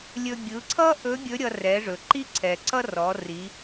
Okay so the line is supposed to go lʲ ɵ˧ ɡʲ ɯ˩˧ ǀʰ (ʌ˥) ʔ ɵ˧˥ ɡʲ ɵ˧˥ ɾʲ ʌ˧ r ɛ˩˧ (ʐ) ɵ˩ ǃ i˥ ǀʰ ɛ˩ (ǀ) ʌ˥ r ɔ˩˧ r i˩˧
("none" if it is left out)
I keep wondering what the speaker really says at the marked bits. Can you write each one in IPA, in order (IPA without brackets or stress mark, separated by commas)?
ʌ˥, ʐ, ǀ